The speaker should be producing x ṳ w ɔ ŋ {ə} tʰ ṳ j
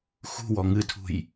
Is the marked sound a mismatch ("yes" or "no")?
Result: yes